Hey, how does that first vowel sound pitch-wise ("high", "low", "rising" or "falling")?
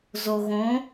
low